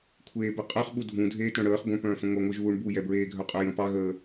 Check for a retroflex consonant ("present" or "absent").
present